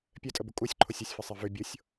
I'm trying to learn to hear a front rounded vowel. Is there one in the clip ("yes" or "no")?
yes